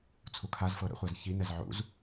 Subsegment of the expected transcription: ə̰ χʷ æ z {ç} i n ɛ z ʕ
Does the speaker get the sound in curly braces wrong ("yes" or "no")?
no